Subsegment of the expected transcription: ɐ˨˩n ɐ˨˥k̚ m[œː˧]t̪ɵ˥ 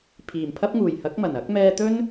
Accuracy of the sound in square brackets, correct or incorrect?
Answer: incorrect